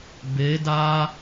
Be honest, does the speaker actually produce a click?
no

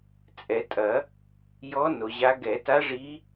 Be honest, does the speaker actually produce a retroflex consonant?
yes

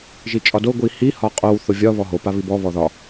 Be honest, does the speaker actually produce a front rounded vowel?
no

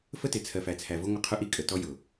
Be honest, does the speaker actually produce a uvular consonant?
yes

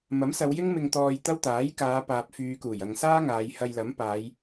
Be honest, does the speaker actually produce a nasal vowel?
no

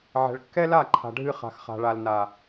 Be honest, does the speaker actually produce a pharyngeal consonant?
yes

